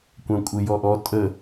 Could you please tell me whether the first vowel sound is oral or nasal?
nasal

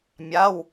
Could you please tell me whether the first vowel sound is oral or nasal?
oral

